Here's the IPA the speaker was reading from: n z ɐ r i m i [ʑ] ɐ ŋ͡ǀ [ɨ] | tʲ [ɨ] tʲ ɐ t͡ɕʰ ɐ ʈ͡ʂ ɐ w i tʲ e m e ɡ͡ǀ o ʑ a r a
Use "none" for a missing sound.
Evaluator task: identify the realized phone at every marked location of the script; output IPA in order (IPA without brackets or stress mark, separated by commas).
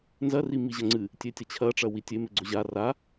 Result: ʑ, ɨ, e